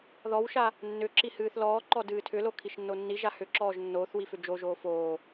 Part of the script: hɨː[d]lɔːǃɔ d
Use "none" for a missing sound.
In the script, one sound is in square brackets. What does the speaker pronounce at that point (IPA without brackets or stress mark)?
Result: θ